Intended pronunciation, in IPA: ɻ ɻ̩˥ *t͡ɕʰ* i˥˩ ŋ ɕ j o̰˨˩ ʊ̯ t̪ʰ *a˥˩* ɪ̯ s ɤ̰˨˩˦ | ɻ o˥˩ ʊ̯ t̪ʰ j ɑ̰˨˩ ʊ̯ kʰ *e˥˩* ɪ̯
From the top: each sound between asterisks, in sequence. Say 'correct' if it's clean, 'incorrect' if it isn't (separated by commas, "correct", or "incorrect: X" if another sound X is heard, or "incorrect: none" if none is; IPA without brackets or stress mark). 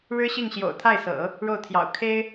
incorrect: ɕ, correct, incorrect: e˥